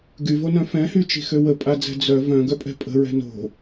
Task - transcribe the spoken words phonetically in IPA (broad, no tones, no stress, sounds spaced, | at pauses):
ɡ y v o n œ̃ f ɛ̃ h y t͡ʃ i̤ x ø w ə pʼ a d͡z ɛ̤ d͡z œ v œ̃ ɡ œ pʼ ɛ̤ pʼ ə̤ ɹ ɛ̤ n o̤